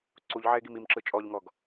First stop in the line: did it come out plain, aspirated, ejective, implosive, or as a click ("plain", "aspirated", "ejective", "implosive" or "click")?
click